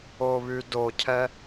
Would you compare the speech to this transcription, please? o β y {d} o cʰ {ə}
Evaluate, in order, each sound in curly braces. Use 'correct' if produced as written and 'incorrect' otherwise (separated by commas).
correct, incorrect